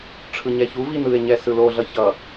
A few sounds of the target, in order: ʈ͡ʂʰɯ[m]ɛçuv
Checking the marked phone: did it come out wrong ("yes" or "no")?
yes